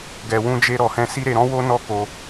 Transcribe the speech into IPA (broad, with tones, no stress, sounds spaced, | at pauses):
ɡ ɛ˨ w ũ˧ d͡ʒ e˧ ɾ ɔ˨ h ɛ̃˧ s i˦ ɾ e˧ ɾ ɔ̃˦ w o˦ n ɔ˦˨ k o˧